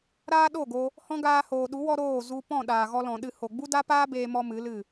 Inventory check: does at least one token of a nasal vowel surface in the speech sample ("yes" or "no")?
yes